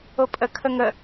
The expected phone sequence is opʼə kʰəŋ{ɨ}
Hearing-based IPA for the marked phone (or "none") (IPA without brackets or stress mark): ə